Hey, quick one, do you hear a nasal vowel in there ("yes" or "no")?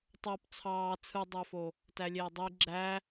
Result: no